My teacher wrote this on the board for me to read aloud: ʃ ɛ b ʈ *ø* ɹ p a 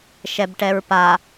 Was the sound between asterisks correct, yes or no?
no